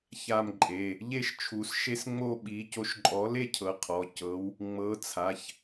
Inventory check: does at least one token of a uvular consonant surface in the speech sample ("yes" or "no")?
yes